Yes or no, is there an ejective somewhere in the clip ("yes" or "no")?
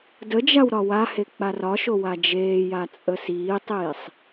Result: yes